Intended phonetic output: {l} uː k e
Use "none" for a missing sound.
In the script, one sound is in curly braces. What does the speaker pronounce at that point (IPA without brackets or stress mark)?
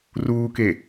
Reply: r